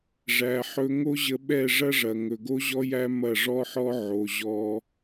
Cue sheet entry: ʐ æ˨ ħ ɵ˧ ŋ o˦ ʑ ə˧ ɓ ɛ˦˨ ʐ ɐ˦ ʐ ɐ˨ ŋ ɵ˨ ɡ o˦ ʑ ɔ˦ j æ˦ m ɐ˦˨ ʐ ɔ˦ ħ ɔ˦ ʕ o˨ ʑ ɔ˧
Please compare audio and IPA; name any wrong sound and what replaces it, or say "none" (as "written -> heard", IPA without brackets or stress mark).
none